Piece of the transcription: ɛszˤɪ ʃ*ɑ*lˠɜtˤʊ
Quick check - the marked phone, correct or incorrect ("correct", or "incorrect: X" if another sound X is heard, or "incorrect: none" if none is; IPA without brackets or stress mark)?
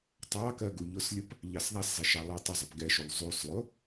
correct